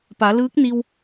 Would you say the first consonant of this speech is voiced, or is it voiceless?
voiceless